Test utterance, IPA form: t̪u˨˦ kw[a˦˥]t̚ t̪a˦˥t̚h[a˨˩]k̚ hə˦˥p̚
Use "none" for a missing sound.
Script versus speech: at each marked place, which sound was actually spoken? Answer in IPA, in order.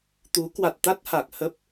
a˨˩, a˨˩

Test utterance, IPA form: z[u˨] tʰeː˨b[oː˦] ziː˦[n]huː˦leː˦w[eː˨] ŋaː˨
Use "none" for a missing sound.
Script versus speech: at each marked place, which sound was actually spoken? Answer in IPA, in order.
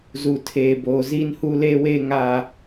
u˨, oː˨, n, eː˦

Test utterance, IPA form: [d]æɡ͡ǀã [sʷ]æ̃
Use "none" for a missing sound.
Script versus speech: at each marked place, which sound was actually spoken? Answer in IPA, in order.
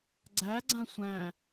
ɡ͡ǀ, sʷ

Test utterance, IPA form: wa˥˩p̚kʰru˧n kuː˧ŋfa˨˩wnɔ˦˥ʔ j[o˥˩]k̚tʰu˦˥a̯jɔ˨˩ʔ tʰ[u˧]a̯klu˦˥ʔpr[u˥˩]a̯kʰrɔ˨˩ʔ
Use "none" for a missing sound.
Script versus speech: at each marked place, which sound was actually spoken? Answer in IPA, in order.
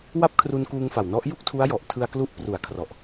u˥˩, ɯ˧, u˩˦

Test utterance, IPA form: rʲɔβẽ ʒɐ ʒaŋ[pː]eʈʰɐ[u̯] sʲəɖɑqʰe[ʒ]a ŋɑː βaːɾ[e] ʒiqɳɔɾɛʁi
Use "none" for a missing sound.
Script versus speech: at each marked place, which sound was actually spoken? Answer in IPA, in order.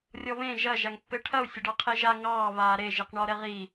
pː, u̯, ʒ, e

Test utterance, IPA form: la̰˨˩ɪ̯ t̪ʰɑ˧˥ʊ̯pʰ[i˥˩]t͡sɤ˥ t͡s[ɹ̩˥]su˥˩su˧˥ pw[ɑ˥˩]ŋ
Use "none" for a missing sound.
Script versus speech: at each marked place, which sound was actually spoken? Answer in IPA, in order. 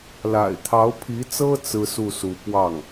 i˧˥, ɹ̩˥, ɑ˥˩

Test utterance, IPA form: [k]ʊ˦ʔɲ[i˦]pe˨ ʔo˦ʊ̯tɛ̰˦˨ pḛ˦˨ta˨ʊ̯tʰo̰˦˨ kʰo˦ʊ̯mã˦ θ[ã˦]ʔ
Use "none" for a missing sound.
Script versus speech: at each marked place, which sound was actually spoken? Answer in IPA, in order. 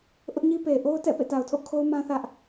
ʔ, i˦, ä˦

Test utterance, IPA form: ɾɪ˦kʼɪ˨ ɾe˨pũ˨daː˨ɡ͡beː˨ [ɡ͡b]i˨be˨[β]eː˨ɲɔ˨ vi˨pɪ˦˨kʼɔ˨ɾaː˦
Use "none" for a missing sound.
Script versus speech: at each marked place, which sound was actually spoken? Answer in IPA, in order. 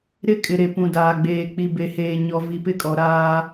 k͡p, h

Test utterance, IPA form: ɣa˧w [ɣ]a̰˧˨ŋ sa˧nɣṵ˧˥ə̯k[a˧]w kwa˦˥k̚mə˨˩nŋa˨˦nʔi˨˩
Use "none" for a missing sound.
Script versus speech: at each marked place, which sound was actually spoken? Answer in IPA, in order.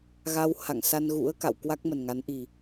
h, a̰˧˨

